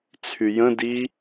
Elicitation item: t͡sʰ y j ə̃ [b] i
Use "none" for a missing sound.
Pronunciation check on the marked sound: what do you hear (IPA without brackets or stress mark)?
d